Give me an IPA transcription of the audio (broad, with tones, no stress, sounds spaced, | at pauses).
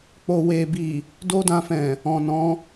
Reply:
k͡p o˨ w e˨ b i˨ | d o˦ d ã˧ f ɛ̃˨ | ɔ̃˨ n ɔ̃˨˦